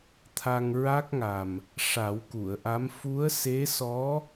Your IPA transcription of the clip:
t̪ʰ a˧ ŋ ɹ a˦˥ k̚ ŋ a˨˩ m | ʂ a˨˩˦ w k u˨˩˨ ə̯ ʔ a˧˥ m f u˧˥ ə̯ s e˧˥ s ɔ˧˥

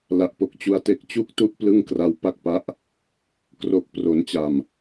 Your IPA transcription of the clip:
l a˨˩ ʔ p o˨˩ k̚ t͡ɕ u˦˥ a̯ t e˦˥ k̚ t͡ɕ u˥˩ k̚ t u˥˩ ʔ p l ɯ˥˩ ŋ k r a˦˥ w p a˥˩ k̚ p a˦˥ ʔ | k r o˨˩ k̚ p r o˩˦ n t͡ɕ a˨˩ m

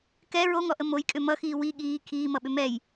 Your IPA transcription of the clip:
k ɛ ɹ o ŋ ɔ ʔ ə m o j kʼ ʏ m ʌ x iː w i ɠ iː kʰ iː m ʌ ɓ ʏ m ɛ j

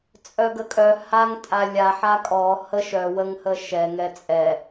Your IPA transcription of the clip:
t͡sʼ œ ɡ ə kʼ œ h a ŋ tʼ a lʲ a ħ a kʼ ɔ h ə ʃ œ w ə ŋ h ə ʃ ɛ ŋ ɛ t͡sʼ ɛ

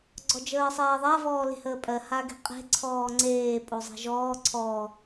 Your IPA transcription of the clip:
ɡ͡ǀ ɔ d͡ʒ əː sˤ ɛː ðˤ a v ɔː l e̤ h əː pʼ ɜ h a ɡ e̤ qʼ e̤ ǀʰ ɔː ŋ͡ǀ eː pʼ o zˤ ɛ̤ ʒ ɔː ǀʰ ɔ

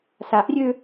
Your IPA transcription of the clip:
s a ʔ rʲ ø

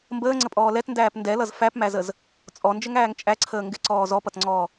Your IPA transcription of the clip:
m b əː ŋ͡ǀ ə pʼ ɔː l ɛ t n d æː p n d ɛ l ʌ z f æ p m æ z ə z | t͡sʼ ɔ n d͡ʒ ə ŋ æː ŋ t͡ʃʼ æ ǀʰ əː ŋ ɡ ɪ ǀ ɔː z ɔ p ʌ t ŋ͡ǀ ɔː

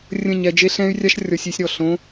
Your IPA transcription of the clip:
rʲ ə̃˦˨ ɲ ɛ˧ d͡ʒ e˦ ɬ ɛ̃˦ y̯ rʲ a˦ ʃ rʲ ɔ˧ sʲ i˧ sʲ ɾ ɔ˨ ɬ õ˧

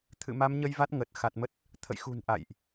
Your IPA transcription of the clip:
t̪ʰ ɨ̰˧˨ m a˨˦ m ɲ ə˧ j v a˦˥ t̚ ŋ ə˨˩ t̚ x a˨˩ t̚ m ə˦˥ t̚ | t̪ʰ ə̰˧˨ j x ṳ˨˩ n ʔ a̰˧˨ j ʔ

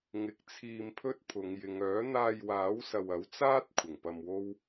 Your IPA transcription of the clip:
ŋ ɪ˨ k̚ t͡sʰ iː˧ m pʰ ɵ˥ t̚ pʰ ʊ˨˧ ŋ j ɪ˨˧ ŋ œː˨˥ n̪ aː˧ j w aː˨˥ w s ɐ˨ w ɐ˨˥ w t͡s aː˥ t̚ kʷʰ ɪ˨˩ ŋ p ɐ˧ m w o˥ w

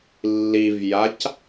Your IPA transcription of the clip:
lː i v j a c

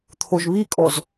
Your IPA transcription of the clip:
t̪ʰ o ʒ β i kʼ ɔ z

